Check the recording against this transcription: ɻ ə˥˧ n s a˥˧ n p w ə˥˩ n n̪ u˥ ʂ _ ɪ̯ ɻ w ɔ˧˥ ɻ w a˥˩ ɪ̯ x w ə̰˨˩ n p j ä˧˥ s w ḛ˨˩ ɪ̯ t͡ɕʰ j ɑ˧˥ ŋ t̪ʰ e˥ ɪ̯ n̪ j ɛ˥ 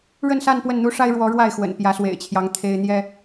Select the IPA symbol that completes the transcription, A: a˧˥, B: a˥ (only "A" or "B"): B